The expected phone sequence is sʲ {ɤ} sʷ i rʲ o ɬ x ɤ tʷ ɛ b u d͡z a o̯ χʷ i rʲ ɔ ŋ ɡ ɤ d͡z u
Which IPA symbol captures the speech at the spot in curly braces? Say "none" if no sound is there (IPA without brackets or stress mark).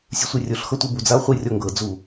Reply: ɯ